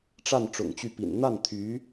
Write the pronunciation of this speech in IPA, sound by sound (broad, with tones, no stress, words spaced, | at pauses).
ʈ͡ʂa˥˩n ʈ͡ʂʊ̰˨˩ŋt͡ɕy˥˩pḭ˨˩n n̪a˥˩nt̪ʰy˧˥